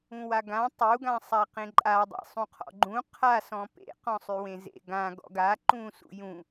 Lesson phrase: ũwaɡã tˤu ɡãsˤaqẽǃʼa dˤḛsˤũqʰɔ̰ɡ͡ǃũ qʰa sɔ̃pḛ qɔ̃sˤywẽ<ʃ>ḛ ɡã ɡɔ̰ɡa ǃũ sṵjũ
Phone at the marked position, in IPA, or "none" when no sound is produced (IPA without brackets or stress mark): z